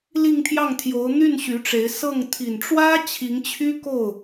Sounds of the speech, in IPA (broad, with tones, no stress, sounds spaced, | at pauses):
l i˥˧ ŋ t̪ʰ j ɑ˥˩ ŋ t̪ʰ j o˧˥ ʊ̯ n̪ y˥˩ n ɕ y˧˥ ʈ͡ʂ e˧˥ ɪ̯ s ɤ˥˩ ŋ t̪ʰ i˨˩ n ʈ͡ʂ w ä˥ t͡ɕʰ i˧˥ ŋ t͡ɕʰ y˥ k o˥˩ ʊ̯